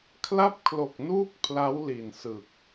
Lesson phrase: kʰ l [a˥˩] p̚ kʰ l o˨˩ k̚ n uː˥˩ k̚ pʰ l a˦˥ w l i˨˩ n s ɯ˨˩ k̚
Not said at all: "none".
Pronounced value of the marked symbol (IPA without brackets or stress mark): a˥˩